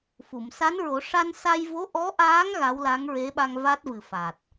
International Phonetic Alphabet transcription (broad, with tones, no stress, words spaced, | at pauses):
fu˨˩˨msa˧˥nɹo˨˩˦ ʂa˧nsa˧j vo˧˥ ʔɔ˧˥ʔaː˧˥ŋ ɣa˧˥wla˧˥ŋɹe˧˥ɓa˧ŋ va˦˥t̚vɨ˨˩fa˨˩t̚